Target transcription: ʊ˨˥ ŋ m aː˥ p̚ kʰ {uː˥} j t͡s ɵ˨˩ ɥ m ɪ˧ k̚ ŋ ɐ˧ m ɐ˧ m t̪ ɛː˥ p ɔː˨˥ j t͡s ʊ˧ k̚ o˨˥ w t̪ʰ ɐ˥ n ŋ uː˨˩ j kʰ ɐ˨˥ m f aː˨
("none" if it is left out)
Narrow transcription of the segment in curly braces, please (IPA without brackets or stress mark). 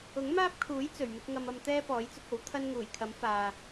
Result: uː˨˥